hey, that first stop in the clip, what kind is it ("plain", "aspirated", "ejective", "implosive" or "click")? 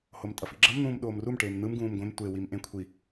ejective